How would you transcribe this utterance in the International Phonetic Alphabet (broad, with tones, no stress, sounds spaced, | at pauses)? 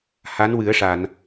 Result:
h a˧˥ n w ɨ˨˩˦ ə̯ ʂ a˨˩˨ n